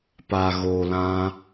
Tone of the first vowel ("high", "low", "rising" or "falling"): low